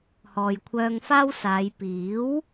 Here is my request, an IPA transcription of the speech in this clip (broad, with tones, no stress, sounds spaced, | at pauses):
h ɔː˨ j kʷʰ œː˧ ŋ f aː˥ w s aː˨˧ j p iː˨˥ w